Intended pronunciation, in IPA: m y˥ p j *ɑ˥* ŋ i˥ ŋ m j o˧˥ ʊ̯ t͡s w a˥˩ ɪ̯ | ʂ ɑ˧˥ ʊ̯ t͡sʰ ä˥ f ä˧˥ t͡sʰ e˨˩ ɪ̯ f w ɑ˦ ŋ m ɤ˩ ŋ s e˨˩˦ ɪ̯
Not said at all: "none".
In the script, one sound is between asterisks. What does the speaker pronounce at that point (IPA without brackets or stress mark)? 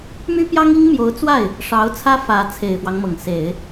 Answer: ɑ˥